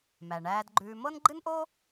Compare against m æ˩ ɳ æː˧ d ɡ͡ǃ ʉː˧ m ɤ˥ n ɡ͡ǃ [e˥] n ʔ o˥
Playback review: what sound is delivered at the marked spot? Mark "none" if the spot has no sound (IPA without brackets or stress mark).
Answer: ɨ˥